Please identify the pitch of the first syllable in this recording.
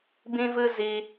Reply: high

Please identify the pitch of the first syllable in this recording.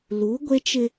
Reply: rising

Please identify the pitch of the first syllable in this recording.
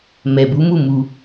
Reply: low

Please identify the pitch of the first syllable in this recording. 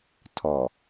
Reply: low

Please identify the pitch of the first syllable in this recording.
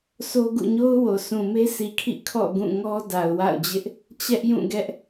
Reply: high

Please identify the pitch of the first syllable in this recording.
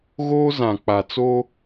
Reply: high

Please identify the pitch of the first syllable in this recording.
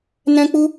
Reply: high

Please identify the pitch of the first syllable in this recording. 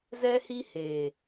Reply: high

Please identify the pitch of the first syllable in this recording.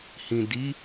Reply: low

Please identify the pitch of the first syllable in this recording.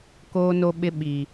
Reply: high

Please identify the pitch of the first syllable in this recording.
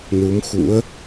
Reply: rising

